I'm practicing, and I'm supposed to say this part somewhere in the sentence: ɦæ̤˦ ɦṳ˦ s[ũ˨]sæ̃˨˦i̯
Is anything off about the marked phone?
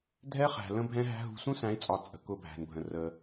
yes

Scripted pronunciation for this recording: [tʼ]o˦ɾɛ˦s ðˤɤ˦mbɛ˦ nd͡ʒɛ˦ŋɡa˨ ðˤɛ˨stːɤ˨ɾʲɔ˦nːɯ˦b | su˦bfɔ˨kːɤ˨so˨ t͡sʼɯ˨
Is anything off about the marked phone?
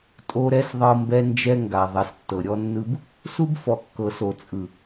no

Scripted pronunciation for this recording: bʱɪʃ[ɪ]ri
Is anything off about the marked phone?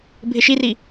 yes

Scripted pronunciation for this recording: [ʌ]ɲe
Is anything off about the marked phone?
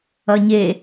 no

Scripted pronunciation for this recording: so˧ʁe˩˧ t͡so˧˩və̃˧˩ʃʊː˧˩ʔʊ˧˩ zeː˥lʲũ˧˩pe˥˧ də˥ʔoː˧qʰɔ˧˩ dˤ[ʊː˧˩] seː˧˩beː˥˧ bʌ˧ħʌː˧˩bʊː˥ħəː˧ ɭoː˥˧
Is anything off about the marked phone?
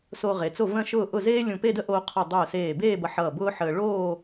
no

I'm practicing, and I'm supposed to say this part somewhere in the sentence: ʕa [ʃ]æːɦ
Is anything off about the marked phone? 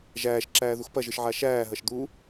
no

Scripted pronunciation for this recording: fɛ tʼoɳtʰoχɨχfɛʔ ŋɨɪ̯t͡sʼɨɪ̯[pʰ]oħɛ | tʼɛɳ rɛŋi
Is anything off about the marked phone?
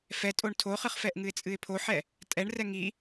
no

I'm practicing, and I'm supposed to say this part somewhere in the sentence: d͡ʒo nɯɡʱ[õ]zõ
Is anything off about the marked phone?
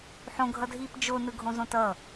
no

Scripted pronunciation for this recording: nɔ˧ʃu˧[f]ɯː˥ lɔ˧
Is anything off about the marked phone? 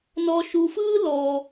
no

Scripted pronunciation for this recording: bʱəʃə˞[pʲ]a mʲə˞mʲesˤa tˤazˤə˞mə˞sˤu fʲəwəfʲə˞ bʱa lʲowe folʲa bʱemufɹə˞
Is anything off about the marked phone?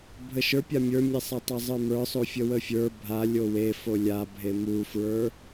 no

